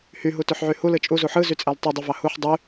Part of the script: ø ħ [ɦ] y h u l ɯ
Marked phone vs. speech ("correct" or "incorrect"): incorrect